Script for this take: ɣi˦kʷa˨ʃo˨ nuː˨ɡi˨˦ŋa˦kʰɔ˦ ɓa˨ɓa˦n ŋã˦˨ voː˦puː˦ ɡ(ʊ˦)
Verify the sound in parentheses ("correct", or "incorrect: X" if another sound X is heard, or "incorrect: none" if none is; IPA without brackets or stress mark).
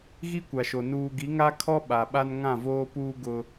correct